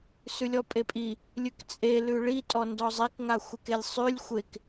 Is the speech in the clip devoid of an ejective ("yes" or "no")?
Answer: no